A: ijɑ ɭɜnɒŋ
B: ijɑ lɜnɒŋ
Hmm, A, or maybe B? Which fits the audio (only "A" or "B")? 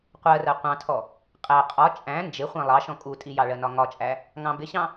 A